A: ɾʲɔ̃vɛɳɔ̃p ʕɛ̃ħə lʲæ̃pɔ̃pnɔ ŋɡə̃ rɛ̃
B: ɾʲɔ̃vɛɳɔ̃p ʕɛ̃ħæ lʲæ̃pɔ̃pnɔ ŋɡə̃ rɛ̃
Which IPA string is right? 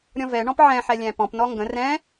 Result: B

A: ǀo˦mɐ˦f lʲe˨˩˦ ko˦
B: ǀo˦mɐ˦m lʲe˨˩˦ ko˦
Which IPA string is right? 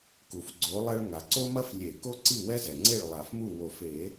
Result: A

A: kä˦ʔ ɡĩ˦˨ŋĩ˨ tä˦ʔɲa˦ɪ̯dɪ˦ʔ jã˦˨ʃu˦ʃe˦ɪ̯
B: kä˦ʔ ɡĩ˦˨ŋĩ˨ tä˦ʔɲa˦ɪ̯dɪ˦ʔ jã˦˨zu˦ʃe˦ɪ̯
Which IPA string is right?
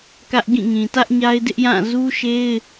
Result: B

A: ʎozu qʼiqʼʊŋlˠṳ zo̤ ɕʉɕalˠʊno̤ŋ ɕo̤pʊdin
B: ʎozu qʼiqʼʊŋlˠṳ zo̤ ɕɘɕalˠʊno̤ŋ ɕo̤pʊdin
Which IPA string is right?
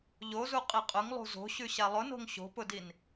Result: A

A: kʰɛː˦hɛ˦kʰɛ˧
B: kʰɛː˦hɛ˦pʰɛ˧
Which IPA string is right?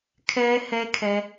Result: A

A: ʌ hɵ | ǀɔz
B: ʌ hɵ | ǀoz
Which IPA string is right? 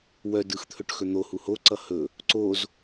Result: B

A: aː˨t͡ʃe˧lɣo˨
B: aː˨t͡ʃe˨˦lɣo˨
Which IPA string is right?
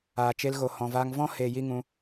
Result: A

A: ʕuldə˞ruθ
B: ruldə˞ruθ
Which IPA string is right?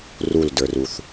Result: B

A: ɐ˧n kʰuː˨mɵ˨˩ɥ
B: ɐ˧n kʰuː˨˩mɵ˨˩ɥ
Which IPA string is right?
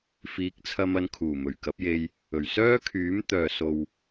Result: B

